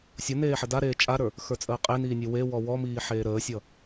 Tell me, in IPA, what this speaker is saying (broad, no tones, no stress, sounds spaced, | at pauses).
sʲ ʌ n eː ħ ə d a ɾ eː t͡ʃʼ a ɾ ə˞ | x ə˞ t͡sʼ əː qʼ e n iː nʲ e w e w ɔ w ɔ m iː ħ eː ɾ əː sʲ ʌ